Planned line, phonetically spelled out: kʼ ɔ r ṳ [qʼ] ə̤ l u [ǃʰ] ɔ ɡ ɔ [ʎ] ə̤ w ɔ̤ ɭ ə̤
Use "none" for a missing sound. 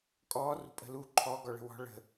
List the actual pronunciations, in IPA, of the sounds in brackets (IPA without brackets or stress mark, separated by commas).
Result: pʼ, ǃʰ, ɭ